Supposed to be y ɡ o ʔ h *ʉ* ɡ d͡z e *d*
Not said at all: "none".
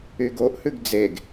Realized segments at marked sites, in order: ʉ, ɡ

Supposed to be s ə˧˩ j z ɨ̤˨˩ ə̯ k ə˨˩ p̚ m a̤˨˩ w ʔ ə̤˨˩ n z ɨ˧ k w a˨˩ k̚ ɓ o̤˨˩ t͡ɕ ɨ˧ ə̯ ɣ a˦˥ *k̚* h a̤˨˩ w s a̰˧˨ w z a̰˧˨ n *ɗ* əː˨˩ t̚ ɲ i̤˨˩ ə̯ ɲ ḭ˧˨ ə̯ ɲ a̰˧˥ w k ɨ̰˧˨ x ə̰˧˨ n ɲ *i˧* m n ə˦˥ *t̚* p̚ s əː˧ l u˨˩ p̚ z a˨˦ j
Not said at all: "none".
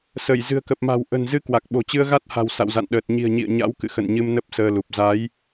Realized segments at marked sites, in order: t̚, ɗ, ɨ˧, none

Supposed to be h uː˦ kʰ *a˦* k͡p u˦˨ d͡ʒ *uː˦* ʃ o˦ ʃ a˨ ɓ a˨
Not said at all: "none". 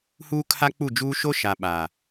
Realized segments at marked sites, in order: a˦, uː˦

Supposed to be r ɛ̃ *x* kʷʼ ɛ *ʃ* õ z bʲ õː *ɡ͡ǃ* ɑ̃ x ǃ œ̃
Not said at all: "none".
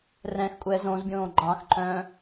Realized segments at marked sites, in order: x, z, ɡ͡ǃ

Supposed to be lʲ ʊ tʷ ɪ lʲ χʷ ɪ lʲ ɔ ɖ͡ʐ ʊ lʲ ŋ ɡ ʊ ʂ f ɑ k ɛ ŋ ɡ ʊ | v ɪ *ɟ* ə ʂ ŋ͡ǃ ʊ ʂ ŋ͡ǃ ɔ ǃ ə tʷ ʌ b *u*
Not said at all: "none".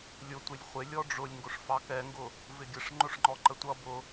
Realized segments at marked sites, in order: ɡʲ, ʊ

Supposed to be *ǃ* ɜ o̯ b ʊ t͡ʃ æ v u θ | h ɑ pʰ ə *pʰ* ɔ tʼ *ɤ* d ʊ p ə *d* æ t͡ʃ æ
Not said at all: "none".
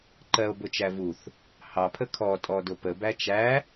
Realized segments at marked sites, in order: ǃ, kʰ, ɔ, b

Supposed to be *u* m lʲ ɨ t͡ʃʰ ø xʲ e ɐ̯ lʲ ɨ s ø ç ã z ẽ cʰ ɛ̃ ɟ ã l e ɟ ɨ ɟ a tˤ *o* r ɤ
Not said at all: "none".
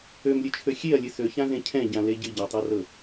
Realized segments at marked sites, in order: ø, ɤ

